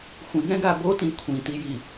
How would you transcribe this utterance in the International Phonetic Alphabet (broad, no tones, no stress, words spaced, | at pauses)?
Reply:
xʷĩŋɛ̃ɡa botĩ kʷʰĩtiji